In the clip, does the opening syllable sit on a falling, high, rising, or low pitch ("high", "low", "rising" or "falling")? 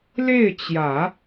falling